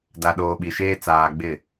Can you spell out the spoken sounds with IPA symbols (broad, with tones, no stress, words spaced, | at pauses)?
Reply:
da˨ɗoː˨ɓi˨ʃeː˦ t͡saː˨ ɡ͡bɪ˦˨